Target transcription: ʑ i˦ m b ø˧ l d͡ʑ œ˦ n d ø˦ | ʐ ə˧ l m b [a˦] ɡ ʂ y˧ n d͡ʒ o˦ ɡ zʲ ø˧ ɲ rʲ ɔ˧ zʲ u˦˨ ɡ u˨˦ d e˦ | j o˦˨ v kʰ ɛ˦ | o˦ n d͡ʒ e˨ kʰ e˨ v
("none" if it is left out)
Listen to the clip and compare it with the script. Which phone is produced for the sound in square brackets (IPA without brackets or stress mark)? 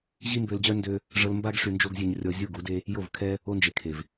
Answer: a˦